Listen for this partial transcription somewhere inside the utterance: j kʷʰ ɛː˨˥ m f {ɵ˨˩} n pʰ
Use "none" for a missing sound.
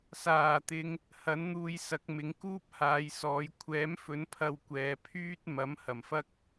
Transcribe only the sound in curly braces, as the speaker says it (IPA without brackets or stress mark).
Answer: ɵ˨˥